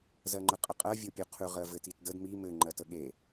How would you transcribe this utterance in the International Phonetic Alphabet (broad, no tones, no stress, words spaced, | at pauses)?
zɜŋ͡ǃəqʼəqʼɜ vʲopʲoqʰʉ ʁɜvɘtitdəd mi mɘ ŋ͡ǃɜtəɠe